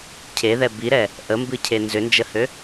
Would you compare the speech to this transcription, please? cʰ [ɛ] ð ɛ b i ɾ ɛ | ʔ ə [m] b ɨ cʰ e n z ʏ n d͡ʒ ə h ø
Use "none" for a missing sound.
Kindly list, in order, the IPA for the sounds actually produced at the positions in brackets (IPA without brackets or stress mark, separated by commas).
e, m